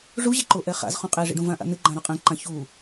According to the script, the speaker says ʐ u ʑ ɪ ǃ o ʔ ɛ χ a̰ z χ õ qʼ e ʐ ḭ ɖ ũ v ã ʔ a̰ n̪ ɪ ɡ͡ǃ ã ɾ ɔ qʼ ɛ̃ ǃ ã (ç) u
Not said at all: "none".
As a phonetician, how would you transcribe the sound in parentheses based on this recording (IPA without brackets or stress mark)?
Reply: ç